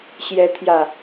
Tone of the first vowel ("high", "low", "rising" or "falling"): rising